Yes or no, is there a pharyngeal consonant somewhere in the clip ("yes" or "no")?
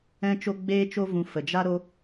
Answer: no